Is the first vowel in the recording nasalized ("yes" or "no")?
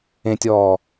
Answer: yes